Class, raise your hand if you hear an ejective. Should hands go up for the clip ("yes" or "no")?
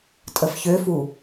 yes